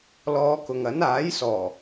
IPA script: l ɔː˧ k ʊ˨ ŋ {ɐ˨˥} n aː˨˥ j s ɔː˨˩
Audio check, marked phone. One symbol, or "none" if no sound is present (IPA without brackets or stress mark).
ɐ˨˥